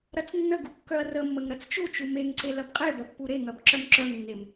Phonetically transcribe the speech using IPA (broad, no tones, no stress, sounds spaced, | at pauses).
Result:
ɾ ɐ t͡s nː ə ɡ u kː œ ɐ̯ r ə mː ə ŋ ɾ ɐ t͡s t͡ʃ u t͡ʃ u m e ŋ ǀ e l ɐ b qʼ e b ɐ pː u ɾ e ŋ ɐ b ǁ œ m ǁ œ ŋ nː e m